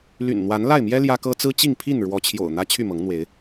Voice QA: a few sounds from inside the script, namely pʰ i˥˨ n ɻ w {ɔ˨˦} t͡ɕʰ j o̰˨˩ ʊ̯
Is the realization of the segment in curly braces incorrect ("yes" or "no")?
no